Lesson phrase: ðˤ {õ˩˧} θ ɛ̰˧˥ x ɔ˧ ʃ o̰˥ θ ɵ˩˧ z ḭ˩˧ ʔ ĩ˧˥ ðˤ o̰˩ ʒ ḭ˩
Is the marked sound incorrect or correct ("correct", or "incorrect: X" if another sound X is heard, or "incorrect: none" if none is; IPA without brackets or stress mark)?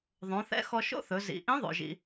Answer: correct